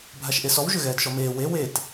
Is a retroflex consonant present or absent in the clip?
absent